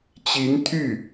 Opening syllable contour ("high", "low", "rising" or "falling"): rising